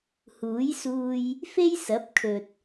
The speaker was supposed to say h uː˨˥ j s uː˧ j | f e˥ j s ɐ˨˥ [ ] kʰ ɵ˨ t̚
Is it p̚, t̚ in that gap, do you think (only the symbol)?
p̚